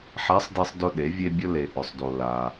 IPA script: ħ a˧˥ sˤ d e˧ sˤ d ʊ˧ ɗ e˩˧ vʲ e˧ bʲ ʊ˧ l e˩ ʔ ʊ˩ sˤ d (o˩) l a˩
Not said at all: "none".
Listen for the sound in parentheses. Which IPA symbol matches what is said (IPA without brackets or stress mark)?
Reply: o˩